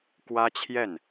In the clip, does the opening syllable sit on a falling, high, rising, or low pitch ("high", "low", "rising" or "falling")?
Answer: high